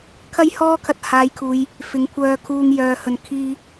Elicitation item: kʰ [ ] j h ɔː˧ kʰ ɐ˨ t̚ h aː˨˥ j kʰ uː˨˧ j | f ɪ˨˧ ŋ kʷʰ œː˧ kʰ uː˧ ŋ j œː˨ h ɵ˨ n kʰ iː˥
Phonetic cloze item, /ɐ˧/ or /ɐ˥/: ɐ˧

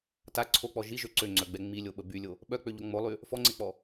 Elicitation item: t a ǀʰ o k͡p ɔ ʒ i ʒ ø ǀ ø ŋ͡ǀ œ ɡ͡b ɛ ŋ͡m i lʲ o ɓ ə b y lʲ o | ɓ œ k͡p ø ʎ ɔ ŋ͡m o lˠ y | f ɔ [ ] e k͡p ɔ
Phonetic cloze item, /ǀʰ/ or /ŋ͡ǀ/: ŋ͡ǀ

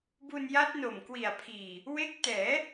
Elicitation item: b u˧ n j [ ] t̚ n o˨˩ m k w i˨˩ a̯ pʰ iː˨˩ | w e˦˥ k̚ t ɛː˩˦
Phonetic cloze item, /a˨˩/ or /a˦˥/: a˦˥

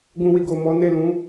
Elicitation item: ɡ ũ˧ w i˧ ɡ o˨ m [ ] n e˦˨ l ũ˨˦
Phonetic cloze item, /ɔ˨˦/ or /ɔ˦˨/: ɔ˨˦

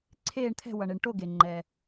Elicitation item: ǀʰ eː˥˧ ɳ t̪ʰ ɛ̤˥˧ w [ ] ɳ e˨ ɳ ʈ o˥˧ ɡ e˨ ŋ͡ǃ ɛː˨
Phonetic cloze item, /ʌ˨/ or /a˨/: ʌ˨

